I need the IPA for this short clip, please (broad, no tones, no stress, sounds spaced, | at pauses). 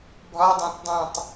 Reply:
bʱ ɒ dˤ æ̃ t dˤ ũ tˤ